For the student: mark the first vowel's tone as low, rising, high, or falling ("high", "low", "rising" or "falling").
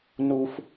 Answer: high